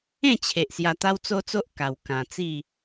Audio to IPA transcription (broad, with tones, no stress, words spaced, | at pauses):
ẽ˥˧t͡ɕʰe˨ʔ sja˧t̪a˦wt͡so˦t͡so˦ʔ ka˨˩wkã˨˩t͡si˥˧